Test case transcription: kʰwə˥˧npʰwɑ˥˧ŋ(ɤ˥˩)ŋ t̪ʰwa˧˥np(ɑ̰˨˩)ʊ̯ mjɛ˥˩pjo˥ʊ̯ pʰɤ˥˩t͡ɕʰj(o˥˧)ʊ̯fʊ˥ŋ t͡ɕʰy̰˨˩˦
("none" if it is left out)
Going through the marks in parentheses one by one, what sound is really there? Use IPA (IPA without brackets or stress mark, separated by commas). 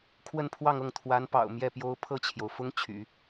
ɤ˥˩, ɑ̰˨˩, o˩